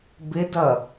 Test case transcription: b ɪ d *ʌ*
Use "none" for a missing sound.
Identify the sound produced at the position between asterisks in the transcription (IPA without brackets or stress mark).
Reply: ʌ